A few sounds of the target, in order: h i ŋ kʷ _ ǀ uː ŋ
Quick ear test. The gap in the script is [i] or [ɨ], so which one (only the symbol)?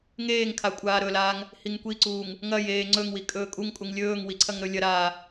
i